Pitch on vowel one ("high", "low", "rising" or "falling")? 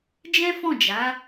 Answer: high